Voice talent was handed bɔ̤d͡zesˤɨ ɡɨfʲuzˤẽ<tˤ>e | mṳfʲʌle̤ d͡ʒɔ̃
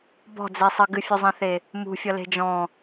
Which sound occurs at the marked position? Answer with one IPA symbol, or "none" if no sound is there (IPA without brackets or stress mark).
θ